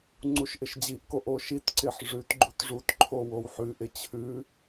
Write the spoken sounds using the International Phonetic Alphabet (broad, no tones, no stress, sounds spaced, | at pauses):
ŋ͡ǀ u ʃ ʔ ɪ ʃ d͡ʑ i ʔ k o ʔ o ʃ i t ǀ ɪ ħ ʐ ʉ t ɡ͡ǃ u t ʐ u t ǃʰ o w o w ħ ʉ ʔ ɪ t͡ɕʰ ʉ